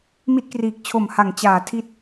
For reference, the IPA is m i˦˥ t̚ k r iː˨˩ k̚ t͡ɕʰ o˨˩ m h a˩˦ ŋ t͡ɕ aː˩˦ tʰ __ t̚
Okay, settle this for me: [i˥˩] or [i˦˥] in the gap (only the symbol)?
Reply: i˦˥